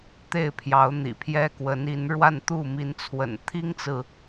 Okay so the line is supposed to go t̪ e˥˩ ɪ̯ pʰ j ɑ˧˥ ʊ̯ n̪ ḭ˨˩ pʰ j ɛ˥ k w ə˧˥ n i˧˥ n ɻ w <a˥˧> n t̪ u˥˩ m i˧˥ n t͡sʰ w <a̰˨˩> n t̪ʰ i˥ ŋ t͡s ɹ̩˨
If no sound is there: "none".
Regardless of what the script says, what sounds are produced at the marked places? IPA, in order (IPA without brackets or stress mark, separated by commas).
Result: a˥˧, ə̰˨˩